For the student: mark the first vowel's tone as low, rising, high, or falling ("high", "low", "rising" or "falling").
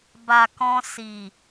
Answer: low